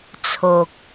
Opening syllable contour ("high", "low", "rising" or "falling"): low